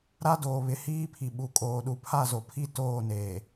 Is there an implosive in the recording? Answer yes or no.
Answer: yes